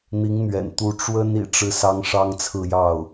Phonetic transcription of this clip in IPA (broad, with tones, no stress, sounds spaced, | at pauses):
n̪ i˧˥ ŋ n̪ ɥ ɛ̰˨˩ n t̪ u˧˥ ʈ͡ʂ w ə˥ n ḭ˨˩ ʈ͡ʂ ɻ̩˥˩ s ɑ˥ ŋ ʂ ɑ˥ ŋ t͡sʰ ɹ̩˥˧ j ɑ˥˩ ʊ̯